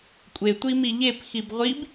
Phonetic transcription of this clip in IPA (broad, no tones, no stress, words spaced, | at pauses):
kʷʼetʷimi ʎepxib ʁʷib